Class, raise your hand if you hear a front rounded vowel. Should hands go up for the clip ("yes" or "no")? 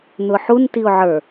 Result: no